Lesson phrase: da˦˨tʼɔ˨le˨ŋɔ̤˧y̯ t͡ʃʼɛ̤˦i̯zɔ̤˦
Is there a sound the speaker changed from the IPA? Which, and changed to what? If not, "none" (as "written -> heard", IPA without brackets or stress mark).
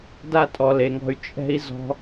none